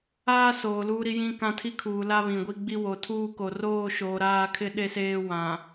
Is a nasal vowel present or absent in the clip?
present